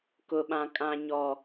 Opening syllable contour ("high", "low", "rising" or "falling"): low